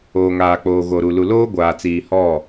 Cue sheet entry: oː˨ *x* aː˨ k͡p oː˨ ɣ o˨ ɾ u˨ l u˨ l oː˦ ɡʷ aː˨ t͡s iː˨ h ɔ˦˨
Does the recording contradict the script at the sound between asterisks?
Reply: yes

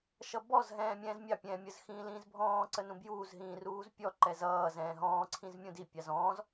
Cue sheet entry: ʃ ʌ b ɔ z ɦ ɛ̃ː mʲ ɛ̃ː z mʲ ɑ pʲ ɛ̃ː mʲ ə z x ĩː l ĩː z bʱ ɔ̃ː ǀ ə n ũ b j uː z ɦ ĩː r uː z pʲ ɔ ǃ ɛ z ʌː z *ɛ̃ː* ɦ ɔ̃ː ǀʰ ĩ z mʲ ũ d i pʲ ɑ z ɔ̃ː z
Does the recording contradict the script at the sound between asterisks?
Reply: no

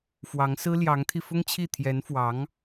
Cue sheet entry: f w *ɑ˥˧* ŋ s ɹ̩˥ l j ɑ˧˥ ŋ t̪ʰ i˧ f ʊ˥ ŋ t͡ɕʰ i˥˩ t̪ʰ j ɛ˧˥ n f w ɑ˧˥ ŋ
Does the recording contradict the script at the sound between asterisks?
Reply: yes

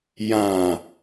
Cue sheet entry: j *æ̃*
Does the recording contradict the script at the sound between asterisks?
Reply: yes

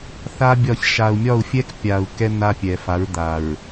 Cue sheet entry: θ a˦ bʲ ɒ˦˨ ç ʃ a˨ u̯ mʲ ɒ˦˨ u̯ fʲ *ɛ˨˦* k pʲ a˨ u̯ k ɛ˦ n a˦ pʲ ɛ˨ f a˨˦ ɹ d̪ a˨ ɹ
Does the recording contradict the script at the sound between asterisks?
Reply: yes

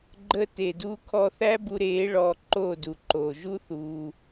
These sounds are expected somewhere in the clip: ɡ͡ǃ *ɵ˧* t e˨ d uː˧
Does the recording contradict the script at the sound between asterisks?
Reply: yes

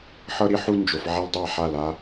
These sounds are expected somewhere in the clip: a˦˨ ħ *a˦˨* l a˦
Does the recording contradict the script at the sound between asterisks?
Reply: no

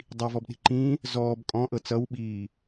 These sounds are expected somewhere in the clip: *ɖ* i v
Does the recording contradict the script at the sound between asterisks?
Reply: yes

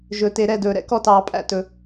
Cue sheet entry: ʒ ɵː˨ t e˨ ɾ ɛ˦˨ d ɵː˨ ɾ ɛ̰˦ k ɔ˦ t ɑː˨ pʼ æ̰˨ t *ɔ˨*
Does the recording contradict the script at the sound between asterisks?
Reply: yes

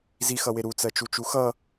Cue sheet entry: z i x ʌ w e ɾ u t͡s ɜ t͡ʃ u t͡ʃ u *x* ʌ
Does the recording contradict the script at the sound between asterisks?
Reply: no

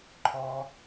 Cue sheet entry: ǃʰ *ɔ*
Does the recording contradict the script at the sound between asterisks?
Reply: no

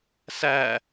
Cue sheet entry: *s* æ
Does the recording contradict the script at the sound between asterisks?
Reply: no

